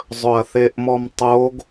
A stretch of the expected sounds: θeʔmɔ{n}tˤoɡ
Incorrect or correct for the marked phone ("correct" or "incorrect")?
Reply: incorrect